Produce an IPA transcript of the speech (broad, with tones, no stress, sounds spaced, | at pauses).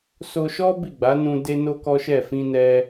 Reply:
s o˧ ʃ ɔ˦ b i˦˨ ɡ͡b a˨˦ n ũ˧ d e˦ n o˦ k ɔ˦ ʃ ɛ˦˨ f ĩ˧ n ɛ˧